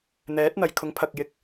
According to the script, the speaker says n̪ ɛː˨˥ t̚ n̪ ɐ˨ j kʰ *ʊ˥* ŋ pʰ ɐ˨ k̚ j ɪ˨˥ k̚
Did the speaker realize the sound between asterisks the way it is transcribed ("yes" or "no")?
no